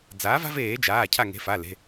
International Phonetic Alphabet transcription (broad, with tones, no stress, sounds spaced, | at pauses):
d͡z aː˩˥ v a̤˦ v eː˧˩˧ d͡ʒ aː˩˧˩ cʰ a˧˩ ŋ e̤˩˥ f a˩˧˩ l e̤˩˧˩